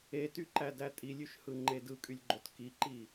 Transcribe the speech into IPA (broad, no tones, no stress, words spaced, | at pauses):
etyǃædæ tʼilʲyʃhɯŋ͡ǃe dɯkʼylʲɡ͡ǃot kiǃi